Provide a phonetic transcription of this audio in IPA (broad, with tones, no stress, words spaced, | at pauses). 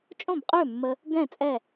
t͡ʃʼõ˥˨bqʼø˥˨mːə˧ | ɡɛ̃˥˨ t͡sʼɛ˥˨